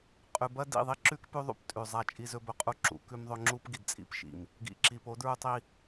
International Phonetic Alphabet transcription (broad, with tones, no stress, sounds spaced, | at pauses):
qʼ ʉ˨ b ɐ˦ d ḭ˦˨ ðˤ i˦ ǁ ʉ˦ k p ʉ˦ ðˤ ṵ˦ p tʼ ʉ˨ zˤ a˦˨ t͡ʃʼ i˦ z ɵ˦ b ɵ˦ qʼ u˦ ǁ ṵ˨ k ʉ˦ m ðˤ ɵ˦ ŋ͡ǁ u˦ p ɡ i˨ d t͡sʼ ḭ˦ p ʃ ḭ˨ m | ɡ ḭ˨ ǁ i˨ p o˨˦ d ɹ u˦ tˤ i˦